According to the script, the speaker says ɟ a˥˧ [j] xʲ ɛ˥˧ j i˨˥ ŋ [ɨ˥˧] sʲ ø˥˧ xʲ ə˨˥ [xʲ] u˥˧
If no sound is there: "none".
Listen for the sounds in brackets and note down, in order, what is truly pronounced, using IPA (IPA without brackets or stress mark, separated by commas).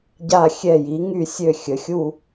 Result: none, y˥˧, xʲ